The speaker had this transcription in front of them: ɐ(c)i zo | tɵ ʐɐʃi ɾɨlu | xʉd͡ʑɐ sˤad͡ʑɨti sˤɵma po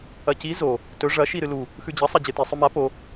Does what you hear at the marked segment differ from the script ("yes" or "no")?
no